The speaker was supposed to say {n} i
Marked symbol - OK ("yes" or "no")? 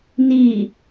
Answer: yes